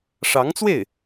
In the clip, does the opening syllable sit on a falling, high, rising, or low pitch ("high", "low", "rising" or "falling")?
rising